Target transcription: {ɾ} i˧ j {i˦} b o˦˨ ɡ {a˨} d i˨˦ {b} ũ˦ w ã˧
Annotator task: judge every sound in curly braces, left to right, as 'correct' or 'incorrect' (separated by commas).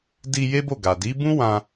incorrect, incorrect, correct, correct